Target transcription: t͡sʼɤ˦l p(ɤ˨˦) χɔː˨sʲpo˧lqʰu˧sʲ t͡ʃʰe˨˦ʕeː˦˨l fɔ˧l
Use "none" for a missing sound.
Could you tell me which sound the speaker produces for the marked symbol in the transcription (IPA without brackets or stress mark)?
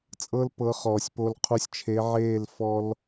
ɤ˨˦